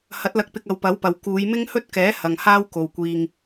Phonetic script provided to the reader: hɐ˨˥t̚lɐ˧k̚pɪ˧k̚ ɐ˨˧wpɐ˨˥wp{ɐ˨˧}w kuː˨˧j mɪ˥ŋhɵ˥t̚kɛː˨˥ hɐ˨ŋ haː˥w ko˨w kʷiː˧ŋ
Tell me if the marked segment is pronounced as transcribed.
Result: no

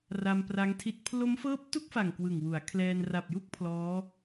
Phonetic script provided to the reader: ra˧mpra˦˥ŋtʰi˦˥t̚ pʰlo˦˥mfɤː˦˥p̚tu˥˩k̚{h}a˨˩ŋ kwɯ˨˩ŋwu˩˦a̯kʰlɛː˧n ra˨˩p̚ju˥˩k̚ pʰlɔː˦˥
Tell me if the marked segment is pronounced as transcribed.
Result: no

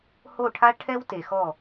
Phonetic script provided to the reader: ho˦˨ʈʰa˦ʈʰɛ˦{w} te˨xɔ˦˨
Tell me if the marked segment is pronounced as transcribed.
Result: yes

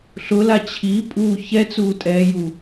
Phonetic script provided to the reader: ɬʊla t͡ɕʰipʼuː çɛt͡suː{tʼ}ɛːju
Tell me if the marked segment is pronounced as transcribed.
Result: yes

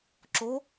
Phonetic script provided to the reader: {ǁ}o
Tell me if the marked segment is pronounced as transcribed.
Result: yes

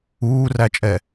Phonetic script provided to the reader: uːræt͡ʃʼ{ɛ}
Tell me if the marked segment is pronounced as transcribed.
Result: yes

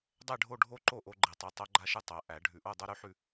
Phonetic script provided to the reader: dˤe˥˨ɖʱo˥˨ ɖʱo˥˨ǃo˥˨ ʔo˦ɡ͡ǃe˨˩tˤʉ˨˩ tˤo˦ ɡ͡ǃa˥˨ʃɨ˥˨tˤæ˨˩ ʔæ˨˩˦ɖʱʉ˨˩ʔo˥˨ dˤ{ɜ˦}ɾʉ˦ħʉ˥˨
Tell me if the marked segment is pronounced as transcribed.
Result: yes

